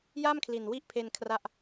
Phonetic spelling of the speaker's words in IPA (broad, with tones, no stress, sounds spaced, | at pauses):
j a˥˩ m kʰ l i˨˩ n w i˦˥ ʔ pʰ e˧ n kʰ r a˥˩ ʔ